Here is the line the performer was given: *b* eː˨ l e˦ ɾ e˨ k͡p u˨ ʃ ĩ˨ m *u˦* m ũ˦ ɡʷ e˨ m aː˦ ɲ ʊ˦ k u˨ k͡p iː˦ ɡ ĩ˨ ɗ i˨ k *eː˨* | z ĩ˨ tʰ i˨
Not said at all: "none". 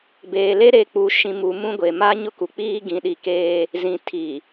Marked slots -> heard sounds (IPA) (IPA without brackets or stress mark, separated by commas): b, u˨, eː˦